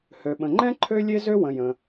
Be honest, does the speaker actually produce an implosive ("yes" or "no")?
yes